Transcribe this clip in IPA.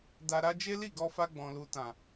d a˧ ɾ a˦ d͡ʒ e˦ l i˦˨ ɡ ɔ˧ f a˧ ɡ͡b ɔ̃˨ l u˨ t ã˨

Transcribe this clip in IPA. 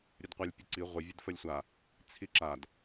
ɾʲ ə d qʷ a lʲ pʲ ə ǀ i ʁʷ ə vʲ ə d f ə lʲ sʷ a | t͡sʰ i ǁ a d

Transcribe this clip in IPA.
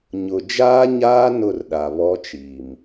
ɲ ʊ˨ d͡ʒ aː˦ ɲ aː˦ n ʊ˦˨ r ɗ a˨ β ɔ˦ t͡ʃ i˨ m

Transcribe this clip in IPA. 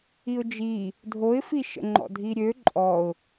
i ʊ̯ d͡ʒ i | dʱ o ɪ̯ f i ʃ ə̰ ŋ͡ǃ ɔ̰ dʱ i ɾʲ ø ǃʼ ɔ ʊ̯

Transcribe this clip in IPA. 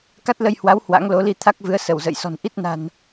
k a˦˥ t̚ l ə˧ j h w a˨˦ w h w a̰˧˥ ŋ l o˨˦ l i˧ t̪ʰ a˦˥ k̚ v ɨ˨˦ ə̯ s ə˧˩ w z ə̰˧˨ j s ɔ̤˨˩ n ʔ i˦˥ t̚ n a̤˨˩ n

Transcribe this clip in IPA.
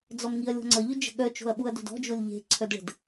d͡z ɔ m ŋ i ɐ̯ lʲ ɔ̤ ŋ͡ǀ ə ʎ ʏ d͡ʒ ə̤ ɠ œ t͡ʃ o̤ ɐ̯ ɓ u ɐ̯ d o̤ d ɔ̤ d͡ʒ o lʲ ʎ e̤ ǀʰ œ d ɭ ə̤ d

